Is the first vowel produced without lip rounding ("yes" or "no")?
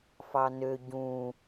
yes